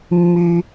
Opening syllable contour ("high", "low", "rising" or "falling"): low